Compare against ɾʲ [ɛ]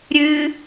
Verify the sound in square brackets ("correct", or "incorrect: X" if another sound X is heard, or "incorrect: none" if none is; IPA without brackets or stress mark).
incorrect: ɨ